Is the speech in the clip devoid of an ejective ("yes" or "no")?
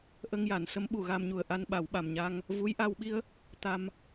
yes